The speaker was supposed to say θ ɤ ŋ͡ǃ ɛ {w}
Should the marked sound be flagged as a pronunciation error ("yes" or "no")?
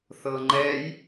yes